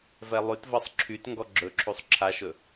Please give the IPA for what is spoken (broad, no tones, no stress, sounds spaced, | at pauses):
v ɛ lˠ y t v ɤ sˤ ǁʰ y t ŋ ɡ ɔ ɡ͡ǁ ɵ ǁʰ u sˤ ǁʰ a ʃ ɵ